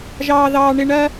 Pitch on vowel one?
high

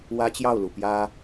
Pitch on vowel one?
high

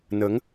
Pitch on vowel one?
rising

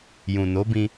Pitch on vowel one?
low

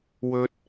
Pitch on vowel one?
high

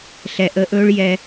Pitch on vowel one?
low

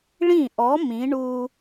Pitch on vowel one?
falling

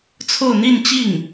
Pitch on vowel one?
falling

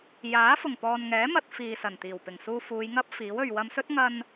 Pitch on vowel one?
rising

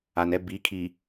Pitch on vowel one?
low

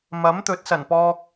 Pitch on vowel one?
rising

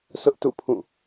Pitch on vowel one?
high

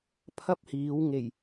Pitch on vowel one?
high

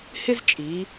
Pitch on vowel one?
high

